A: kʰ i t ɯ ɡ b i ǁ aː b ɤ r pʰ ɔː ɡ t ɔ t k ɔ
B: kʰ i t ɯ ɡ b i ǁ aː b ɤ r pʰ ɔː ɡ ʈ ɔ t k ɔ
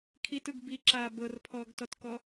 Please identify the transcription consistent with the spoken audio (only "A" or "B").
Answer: A